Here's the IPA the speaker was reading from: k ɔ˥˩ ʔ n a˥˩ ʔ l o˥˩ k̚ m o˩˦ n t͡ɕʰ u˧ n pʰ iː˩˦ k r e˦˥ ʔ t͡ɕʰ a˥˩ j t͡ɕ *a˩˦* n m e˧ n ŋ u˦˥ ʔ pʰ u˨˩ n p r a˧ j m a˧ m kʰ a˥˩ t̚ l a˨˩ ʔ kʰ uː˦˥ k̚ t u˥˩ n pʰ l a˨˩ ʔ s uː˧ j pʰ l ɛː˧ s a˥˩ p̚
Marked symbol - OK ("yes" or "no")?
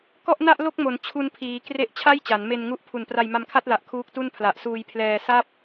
yes